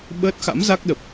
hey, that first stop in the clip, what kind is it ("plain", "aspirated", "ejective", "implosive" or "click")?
implosive